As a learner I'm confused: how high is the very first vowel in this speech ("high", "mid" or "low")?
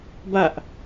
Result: low